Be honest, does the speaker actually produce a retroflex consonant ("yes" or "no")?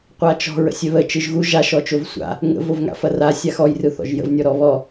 no